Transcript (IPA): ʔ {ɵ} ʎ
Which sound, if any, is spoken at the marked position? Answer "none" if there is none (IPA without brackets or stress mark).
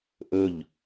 ɵ